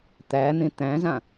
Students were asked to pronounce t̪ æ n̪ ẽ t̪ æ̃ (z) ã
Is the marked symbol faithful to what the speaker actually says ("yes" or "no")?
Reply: yes